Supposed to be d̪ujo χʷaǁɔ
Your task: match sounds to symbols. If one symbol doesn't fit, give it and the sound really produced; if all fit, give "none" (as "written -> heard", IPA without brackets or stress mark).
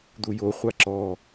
none